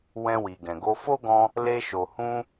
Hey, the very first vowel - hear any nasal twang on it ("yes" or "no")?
yes